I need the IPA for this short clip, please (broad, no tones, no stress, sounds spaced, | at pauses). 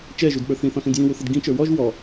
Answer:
t͡ʃ ɛ ʒ u d ɓ ə˞ θ ĩ θ ɔ̃ s ĩ d j ĩ w u θ ɛ d ɡ ĩ t͡ʃ ə˞ w ɔ ʒ w ɔ